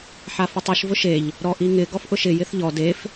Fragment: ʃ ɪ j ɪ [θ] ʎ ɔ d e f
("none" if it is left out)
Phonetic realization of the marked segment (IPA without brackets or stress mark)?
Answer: θ